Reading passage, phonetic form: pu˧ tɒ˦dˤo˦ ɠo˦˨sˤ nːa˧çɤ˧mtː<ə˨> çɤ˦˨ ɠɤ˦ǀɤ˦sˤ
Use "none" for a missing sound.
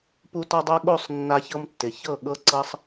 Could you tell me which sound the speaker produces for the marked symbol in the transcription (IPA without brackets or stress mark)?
ɪ˨